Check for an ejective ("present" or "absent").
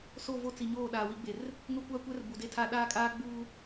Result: present